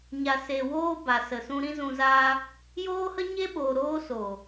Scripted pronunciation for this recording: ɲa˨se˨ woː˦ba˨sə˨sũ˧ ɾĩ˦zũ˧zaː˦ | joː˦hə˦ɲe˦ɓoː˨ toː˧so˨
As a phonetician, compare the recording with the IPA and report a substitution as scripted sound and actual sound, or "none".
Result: t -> ɾ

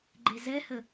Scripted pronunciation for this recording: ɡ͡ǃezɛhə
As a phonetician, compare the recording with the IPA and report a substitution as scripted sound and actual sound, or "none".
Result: none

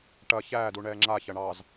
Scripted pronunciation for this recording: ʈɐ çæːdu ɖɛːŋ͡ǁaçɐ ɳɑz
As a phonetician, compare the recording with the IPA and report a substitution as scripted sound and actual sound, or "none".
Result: ɖ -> ɳ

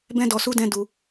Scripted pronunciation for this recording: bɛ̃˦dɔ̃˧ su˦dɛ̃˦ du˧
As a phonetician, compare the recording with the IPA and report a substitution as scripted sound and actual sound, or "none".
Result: ɔ̃˧ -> ɔ˧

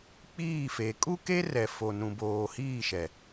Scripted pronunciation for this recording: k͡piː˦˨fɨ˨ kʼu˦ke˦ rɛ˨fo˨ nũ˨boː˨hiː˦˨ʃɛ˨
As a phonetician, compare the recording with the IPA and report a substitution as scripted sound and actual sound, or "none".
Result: ɨ˨ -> e˨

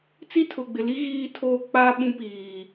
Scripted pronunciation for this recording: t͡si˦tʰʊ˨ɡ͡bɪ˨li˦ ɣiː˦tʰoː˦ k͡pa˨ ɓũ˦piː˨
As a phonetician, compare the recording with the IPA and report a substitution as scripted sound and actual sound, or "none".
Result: a˨ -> a˦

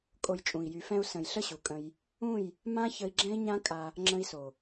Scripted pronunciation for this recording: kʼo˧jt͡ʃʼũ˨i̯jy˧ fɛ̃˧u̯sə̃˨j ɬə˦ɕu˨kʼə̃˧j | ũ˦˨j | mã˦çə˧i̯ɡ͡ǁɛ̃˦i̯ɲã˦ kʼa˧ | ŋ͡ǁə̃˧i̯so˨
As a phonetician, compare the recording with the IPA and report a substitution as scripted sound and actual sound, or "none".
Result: none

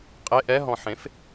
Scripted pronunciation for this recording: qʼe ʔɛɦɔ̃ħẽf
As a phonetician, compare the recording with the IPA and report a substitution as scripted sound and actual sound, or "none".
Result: none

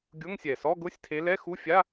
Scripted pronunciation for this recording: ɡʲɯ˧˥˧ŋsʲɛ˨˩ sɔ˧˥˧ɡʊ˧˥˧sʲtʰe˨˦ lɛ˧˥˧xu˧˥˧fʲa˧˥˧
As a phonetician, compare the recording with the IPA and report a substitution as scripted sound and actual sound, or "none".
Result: ɯ˧˥˧ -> ʊ˧˥˧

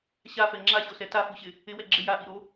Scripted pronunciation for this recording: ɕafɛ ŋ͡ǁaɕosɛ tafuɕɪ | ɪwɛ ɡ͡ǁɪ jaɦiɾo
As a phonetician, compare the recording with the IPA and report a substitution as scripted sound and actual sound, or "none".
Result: ɦ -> ʔ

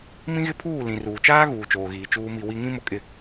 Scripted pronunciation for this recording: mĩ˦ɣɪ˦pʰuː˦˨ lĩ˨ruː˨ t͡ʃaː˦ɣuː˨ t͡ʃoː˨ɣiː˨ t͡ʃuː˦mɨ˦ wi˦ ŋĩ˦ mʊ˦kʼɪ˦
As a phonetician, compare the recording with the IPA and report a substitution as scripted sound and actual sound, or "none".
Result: ɨ˦ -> i˦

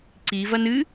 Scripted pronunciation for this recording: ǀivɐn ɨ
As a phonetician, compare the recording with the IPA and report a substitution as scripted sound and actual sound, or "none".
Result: none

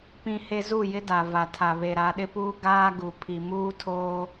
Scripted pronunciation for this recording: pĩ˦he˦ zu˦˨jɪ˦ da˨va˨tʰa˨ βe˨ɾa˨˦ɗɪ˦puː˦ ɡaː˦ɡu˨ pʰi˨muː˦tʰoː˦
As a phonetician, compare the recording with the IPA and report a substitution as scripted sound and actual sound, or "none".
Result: none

